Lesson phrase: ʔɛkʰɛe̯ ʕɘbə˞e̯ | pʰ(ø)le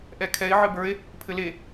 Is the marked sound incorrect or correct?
incorrect: ɘ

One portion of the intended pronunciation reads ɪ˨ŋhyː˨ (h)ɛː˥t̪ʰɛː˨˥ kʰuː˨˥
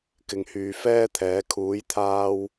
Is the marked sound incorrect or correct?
incorrect: f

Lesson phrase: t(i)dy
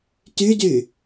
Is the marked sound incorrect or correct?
incorrect: y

